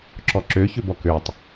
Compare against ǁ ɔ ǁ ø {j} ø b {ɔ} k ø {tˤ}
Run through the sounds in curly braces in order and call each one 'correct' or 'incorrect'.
incorrect: ç, correct, correct

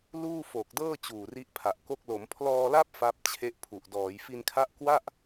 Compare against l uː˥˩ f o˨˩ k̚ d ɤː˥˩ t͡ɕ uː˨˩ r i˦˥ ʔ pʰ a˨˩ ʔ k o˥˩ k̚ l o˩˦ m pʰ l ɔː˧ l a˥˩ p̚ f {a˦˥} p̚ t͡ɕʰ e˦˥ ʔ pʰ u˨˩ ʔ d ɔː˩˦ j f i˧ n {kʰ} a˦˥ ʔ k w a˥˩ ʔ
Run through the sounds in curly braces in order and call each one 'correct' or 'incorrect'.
correct, correct

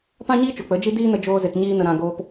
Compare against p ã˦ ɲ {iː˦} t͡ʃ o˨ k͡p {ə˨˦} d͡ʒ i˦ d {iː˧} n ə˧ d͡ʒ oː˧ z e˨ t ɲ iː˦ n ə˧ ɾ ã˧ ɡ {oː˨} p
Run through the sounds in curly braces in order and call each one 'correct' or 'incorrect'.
correct, correct, incorrect: iː˦, incorrect: oː˧

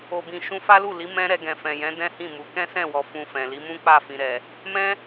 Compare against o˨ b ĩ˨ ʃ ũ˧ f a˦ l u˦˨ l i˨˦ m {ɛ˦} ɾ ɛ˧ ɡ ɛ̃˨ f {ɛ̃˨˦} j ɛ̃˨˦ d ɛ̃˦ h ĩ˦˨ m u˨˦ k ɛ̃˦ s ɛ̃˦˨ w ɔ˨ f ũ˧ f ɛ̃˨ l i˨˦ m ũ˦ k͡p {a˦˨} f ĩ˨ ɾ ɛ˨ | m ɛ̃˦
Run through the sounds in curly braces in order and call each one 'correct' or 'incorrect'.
incorrect: ɛ̃˦, incorrect: ɛ̃˨, correct

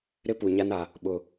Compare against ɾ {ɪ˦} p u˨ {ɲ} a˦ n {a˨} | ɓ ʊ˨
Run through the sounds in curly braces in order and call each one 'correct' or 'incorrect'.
correct, correct, correct

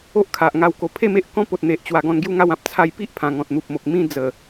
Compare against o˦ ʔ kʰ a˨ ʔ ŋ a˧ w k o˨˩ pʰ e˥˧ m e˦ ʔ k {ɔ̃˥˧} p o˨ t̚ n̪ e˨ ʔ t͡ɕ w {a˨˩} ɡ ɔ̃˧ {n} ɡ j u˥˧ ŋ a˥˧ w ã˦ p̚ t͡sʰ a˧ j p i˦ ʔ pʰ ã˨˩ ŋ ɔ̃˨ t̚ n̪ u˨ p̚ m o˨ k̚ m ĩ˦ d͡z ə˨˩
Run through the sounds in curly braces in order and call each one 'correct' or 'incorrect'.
incorrect: ɔ̃˦, correct, correct

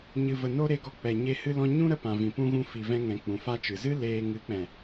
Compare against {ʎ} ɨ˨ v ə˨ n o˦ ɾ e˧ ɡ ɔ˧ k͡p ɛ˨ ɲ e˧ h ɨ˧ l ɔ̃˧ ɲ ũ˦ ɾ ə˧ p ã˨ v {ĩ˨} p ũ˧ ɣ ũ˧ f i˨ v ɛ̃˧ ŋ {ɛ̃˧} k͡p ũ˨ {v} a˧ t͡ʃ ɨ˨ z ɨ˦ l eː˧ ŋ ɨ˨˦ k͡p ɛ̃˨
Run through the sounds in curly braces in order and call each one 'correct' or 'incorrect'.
incorrect: ɲ, correct, incorrect: ɛ̃˨, incorrect: f

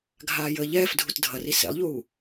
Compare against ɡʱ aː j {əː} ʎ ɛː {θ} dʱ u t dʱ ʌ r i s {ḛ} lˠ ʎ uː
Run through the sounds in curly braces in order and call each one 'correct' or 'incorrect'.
correct, incorrect: f, correct

